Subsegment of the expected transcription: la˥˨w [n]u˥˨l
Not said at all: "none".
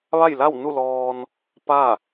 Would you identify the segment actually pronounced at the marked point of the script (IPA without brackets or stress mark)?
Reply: n